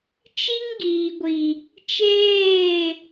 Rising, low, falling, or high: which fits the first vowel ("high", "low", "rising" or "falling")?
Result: high